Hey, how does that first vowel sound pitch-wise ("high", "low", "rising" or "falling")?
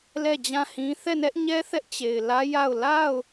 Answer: falling